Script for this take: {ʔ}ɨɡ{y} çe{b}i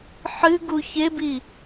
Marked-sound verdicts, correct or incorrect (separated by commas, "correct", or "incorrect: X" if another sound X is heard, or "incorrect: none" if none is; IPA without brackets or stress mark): incorrect: ħ, incorrect: u, correct